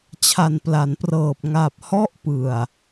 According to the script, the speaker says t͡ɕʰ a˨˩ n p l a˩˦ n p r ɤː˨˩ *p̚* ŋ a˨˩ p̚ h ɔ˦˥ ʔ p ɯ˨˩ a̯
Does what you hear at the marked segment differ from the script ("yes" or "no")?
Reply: no